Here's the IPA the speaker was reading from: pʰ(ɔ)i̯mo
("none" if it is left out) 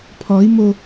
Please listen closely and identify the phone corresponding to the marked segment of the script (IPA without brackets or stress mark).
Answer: ɔ